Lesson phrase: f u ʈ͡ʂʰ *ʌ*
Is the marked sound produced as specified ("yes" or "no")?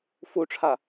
no